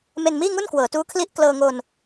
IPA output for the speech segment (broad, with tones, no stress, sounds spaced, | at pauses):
m e˧ n m iː˥˩ ŋ u˥˩ n k w ɤː˩˦ t uː˦˥ kʰ l i˥˩ ʔ k l ɤː˧ ŋ o˧ n